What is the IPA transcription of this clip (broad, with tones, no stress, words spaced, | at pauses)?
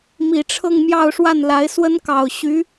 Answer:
mi˨˩ʈ͡ʂʰɤ˥˧ŋ mjɑ˥˧ʊ̯ʂwa˥˩nla˧˥ɪ̯swə˥n kɑ˨˩ʊ̯ɕy˧˥